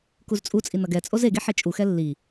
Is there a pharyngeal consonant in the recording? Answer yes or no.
yes